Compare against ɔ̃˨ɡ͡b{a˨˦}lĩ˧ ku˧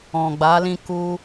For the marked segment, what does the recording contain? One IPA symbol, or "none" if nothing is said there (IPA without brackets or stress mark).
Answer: a˨˦